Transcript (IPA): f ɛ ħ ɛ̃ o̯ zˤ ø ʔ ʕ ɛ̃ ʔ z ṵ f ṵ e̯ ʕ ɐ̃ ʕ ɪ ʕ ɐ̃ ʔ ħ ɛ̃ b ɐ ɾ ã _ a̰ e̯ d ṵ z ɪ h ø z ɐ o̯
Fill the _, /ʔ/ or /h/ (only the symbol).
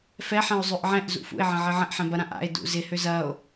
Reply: ʔ